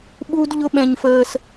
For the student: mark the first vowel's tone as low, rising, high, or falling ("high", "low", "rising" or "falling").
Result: high